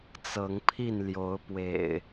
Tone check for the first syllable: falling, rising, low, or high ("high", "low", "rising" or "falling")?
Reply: rising